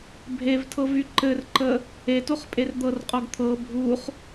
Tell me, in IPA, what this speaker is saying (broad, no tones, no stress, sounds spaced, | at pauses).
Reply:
bʱ e v tʰ ɤ v y ǃ ɘ r ǃ ə | e t o χ pʼ e r d̪ ɤ r qʼ o ɡ t̪ʰ ɤ bʱ u χ